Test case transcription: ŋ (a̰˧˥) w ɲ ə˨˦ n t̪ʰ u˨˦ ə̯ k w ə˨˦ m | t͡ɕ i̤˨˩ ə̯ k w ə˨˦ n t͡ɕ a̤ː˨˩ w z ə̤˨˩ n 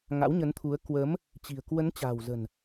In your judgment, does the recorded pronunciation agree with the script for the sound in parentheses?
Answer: yes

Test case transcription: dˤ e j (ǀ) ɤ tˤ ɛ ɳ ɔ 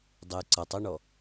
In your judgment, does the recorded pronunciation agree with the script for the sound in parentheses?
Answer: yes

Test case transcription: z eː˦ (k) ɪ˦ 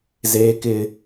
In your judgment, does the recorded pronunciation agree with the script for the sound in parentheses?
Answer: yes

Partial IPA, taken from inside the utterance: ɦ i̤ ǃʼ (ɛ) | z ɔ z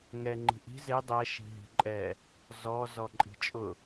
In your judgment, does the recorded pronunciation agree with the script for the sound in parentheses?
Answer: yes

